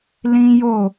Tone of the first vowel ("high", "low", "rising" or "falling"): high